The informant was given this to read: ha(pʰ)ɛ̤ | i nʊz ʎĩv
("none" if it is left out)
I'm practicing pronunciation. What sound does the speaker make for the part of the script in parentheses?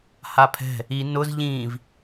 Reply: pʰ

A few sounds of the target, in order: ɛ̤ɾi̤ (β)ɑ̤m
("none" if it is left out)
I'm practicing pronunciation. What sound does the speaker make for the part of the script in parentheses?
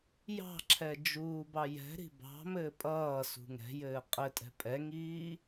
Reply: b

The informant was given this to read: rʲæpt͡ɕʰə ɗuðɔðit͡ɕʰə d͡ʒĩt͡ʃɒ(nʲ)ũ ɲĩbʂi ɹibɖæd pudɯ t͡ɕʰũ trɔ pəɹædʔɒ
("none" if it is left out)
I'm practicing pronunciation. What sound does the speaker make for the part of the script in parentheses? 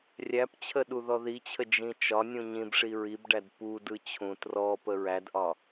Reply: nʲ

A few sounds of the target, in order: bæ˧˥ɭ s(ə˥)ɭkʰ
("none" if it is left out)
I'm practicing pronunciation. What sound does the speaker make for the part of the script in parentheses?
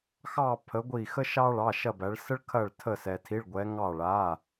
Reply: ə˥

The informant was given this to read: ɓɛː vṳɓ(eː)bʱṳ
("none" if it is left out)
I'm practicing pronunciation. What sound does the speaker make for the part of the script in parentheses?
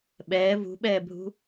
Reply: ɛː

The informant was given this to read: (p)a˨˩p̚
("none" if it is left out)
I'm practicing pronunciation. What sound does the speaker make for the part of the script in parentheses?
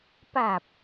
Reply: p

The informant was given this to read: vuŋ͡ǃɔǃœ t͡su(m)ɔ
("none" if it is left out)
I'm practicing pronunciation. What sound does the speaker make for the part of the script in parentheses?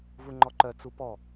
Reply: p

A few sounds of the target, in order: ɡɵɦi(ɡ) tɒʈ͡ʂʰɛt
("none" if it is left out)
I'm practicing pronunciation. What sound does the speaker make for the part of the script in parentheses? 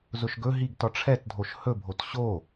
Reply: ɡ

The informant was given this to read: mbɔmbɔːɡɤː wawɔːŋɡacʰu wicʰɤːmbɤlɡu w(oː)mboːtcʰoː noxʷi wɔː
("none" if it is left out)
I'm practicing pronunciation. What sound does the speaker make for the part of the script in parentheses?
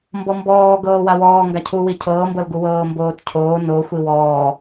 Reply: ɤː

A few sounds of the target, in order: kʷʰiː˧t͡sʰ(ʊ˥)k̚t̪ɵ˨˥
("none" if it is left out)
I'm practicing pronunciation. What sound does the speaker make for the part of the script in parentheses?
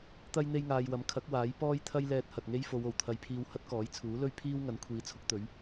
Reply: ʊ˥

